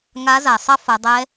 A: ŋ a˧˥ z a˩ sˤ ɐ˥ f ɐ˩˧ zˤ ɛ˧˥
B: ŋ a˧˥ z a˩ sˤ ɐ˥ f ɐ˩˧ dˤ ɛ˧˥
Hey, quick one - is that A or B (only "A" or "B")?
B